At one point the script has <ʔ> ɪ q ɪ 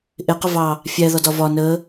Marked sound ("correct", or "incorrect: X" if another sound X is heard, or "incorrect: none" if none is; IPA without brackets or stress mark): correct